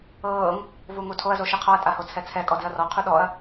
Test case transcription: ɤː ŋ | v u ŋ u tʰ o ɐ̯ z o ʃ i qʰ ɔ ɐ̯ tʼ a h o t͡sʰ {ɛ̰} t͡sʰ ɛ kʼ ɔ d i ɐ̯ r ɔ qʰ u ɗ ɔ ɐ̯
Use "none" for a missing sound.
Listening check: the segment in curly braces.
ɛ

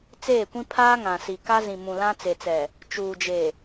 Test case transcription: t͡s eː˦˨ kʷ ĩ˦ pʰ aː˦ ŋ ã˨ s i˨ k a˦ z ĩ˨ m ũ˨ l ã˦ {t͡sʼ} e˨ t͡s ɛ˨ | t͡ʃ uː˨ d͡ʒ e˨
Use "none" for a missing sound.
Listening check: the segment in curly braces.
t͡s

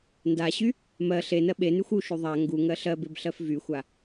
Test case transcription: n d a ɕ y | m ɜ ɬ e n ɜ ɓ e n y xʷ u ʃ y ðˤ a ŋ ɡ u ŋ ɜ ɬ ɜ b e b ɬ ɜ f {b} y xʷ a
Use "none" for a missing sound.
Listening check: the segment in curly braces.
v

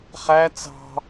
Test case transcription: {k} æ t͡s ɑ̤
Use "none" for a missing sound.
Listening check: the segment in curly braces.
χ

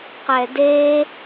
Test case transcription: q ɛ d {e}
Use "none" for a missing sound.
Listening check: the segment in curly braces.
e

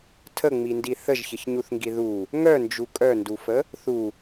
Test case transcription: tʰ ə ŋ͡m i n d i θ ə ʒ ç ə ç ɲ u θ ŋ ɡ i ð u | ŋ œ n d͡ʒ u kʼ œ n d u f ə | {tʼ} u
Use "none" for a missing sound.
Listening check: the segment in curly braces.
θ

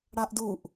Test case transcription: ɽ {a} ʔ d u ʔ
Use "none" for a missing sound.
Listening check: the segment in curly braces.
a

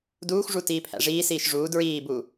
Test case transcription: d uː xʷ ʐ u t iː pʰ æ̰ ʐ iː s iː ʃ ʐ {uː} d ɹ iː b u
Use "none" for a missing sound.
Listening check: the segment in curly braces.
uː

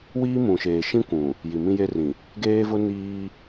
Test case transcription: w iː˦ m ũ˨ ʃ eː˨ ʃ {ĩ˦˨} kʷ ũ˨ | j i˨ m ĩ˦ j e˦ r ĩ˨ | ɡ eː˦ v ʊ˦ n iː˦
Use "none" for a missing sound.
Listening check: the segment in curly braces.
ĩ˦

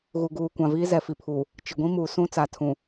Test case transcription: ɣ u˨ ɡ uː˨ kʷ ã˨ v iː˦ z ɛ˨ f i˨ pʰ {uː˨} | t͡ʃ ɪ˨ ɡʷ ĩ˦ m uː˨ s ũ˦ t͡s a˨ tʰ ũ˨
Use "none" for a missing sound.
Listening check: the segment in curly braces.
uː˨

